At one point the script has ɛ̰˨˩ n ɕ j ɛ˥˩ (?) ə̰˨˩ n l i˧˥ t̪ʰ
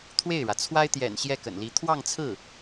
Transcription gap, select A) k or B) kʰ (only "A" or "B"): A